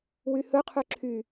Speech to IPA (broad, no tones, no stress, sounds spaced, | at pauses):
w y h ɵ qʰ ø ǁʰ y